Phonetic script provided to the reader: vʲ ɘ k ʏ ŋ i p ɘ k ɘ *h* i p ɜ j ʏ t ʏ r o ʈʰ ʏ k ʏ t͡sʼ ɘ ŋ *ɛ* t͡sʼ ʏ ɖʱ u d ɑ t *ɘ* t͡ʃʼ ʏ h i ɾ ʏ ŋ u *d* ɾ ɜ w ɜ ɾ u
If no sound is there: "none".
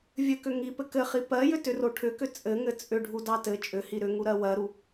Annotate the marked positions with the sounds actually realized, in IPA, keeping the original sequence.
χ, ɘ, ɘ, none

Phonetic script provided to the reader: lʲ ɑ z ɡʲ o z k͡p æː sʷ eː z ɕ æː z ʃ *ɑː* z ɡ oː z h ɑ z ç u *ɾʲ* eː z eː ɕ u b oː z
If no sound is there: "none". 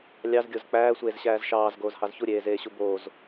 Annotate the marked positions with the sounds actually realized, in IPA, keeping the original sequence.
ɑː, ɾʲ

